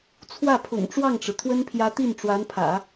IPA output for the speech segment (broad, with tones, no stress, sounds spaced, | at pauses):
t͡sʰ w ä˥˩ pʰ ʊ̰˨˩ ŋ ʈ͡ʂ w ɑ˥˩ ŋ ʈ͡ʂ ɻ̩˩ t̪ʰ w ə˥ n pʰ j ä˧˥ t̪ i˥˩ n ʈ͡ʂ w a˧˥ n pʰ ä̰˨˩˦